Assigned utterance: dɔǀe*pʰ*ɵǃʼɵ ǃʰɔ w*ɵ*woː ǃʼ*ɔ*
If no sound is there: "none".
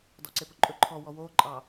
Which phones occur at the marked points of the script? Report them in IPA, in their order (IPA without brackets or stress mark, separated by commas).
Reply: p, ɔ, ɑ